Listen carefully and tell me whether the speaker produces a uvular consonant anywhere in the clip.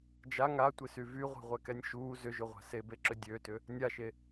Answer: yes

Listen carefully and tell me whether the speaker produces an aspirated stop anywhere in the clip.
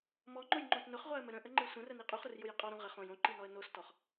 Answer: no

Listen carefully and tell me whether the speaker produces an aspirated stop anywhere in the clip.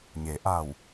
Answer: no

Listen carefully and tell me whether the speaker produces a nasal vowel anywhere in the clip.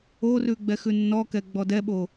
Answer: no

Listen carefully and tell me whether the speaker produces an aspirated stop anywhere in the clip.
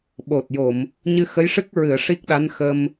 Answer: no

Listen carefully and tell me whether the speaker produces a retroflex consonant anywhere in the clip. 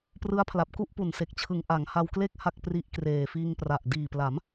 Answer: no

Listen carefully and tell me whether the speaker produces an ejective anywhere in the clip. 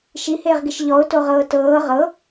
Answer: no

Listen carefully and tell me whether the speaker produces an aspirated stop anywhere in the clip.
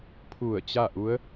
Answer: yes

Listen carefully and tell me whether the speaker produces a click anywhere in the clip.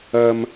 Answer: no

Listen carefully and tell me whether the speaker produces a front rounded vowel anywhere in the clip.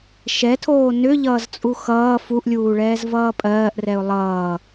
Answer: yes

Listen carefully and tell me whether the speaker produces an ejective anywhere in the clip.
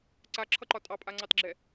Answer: yes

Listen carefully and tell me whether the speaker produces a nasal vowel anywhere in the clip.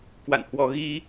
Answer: no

